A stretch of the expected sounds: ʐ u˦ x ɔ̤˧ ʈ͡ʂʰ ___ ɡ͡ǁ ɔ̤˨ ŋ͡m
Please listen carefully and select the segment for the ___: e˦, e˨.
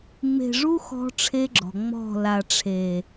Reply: e˦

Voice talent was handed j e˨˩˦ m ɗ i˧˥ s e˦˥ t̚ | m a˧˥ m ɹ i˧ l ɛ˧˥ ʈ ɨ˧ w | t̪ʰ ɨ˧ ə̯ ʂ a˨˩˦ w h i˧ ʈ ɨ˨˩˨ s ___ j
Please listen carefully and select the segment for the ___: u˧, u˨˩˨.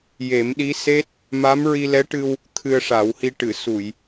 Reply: u˨˩˨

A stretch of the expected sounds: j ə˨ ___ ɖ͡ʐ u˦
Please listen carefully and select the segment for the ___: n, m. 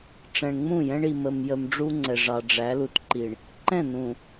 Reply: m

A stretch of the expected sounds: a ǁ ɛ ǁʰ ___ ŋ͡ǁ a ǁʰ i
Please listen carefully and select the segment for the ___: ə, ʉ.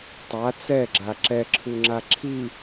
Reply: ʉ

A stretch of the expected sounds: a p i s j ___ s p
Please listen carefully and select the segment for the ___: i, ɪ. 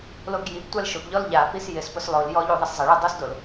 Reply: ɪ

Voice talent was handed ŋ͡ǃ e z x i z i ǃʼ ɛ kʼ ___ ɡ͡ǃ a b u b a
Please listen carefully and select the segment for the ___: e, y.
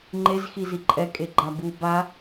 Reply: e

